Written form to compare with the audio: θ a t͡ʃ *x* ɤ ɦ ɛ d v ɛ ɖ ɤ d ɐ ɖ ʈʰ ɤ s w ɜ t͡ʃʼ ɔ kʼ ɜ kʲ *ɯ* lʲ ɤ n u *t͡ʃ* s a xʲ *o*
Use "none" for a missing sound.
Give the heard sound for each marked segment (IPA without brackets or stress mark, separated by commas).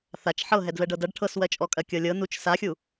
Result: ħ, ɤ, t͡ʃ, u